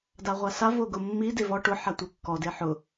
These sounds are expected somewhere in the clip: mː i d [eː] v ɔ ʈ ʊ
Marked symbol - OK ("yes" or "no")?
no